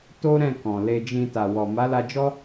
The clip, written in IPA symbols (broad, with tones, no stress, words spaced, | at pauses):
to˦ ɾɛ̃˦˨ kɔ̃˨ le˧d͡ʒĩ˧ ta˨wɔ˨ ma˨˦la˧d͡ʒɔ˦